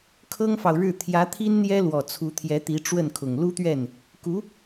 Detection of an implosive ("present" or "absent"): absent